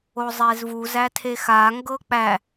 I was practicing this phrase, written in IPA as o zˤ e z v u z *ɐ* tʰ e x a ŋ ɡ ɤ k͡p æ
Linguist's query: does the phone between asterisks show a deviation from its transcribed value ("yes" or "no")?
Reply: yes